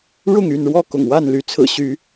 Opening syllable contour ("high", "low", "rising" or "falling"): falling